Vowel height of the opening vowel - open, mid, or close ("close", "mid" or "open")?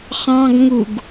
open